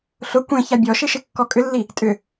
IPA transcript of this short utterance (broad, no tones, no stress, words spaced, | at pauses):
ɬʊ kʷẽ çabʲɔʃɪʃɪ kːɔkʼʏlːi | tʼʏ